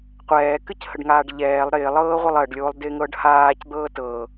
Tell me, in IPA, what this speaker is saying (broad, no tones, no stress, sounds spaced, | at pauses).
qʷ ɛː k ɨ c h ə ɖ ŋ aː ɖ ʎ ɛː lˠ ɾ ɪː lˠ ɤː ʁʷ ɪ lˠ ɜ ɖ lʲ oː lˠ d ɪː ŋ ɤː ɖ h aː c d̪ ɤː t ɤː